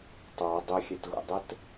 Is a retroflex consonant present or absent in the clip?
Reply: absent